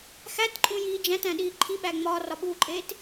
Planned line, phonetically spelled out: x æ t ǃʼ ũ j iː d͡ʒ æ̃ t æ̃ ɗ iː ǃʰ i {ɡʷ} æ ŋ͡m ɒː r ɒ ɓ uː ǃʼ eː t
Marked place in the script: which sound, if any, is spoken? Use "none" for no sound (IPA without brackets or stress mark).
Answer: ɓ